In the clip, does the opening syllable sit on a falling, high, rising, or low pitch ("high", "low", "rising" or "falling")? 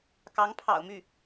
rising